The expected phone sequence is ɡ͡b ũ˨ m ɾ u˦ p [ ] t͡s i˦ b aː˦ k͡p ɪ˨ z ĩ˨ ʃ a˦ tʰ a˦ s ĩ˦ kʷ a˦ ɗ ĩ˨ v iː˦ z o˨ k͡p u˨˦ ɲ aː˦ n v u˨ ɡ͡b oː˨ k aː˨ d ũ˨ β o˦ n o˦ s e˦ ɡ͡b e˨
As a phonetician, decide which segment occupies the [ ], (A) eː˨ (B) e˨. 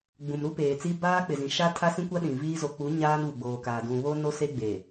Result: A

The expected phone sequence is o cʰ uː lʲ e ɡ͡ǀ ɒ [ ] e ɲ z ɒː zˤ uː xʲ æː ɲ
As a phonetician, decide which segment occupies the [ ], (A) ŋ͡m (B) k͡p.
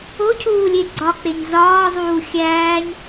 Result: B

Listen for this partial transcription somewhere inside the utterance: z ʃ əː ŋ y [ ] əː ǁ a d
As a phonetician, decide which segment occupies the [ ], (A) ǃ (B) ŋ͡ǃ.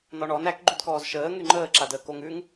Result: B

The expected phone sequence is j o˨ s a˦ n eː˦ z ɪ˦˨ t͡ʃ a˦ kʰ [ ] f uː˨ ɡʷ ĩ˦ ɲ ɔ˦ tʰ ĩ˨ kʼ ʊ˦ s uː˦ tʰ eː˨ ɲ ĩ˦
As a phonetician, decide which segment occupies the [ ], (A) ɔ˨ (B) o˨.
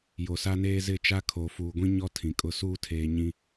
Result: B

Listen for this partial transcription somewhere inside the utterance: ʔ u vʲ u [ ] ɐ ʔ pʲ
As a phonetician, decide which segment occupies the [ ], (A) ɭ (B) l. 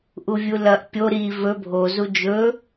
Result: B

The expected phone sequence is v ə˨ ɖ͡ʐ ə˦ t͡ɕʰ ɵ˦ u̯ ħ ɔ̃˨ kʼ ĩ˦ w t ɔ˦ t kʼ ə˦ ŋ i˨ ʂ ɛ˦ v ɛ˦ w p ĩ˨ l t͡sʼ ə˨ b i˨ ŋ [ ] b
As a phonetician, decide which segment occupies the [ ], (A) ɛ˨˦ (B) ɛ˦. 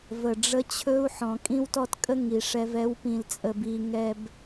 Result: B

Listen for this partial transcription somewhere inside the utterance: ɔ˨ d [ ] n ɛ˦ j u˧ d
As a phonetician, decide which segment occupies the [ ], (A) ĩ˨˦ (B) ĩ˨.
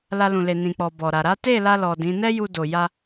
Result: A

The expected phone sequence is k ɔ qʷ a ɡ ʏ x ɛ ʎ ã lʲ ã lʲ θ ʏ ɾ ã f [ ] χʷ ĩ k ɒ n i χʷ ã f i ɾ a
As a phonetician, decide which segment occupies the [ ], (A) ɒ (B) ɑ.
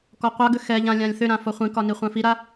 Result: A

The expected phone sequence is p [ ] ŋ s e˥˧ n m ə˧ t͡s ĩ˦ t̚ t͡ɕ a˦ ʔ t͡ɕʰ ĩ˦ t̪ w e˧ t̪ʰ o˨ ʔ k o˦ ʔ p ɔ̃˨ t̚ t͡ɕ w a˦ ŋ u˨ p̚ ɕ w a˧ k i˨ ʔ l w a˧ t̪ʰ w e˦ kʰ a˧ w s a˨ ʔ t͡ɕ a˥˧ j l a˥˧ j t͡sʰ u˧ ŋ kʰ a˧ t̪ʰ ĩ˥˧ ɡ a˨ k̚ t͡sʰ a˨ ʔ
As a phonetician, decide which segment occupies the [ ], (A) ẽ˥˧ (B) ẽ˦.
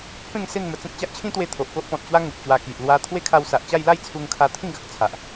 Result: A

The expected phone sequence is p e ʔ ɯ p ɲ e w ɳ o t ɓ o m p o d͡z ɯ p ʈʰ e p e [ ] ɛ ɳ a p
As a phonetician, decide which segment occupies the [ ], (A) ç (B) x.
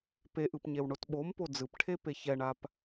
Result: A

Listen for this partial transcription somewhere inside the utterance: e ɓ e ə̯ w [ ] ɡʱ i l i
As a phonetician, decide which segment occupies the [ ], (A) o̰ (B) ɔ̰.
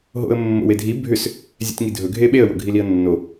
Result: A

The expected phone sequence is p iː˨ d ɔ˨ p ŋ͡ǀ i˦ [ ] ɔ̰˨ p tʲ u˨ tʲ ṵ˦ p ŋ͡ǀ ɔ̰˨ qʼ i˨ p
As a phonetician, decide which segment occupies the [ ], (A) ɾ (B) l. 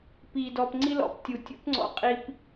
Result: B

